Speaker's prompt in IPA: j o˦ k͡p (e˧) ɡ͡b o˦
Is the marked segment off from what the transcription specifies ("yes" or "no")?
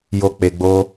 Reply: no